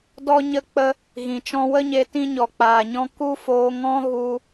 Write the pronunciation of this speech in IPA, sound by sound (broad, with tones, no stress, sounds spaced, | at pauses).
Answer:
d ɔ˧ ɲ ə˧ k͡p ə˧ | ɣ ĩ˨ t͡ʃ ɔ̃˧ w ə˦ ɲ e˧ t ĩ˧ ɲ ɔ˨ k͡p aː˨ ɲ ɔ̃˧ k u˦ f oː˧ ŋ ɔ̃˦ ɣ u˧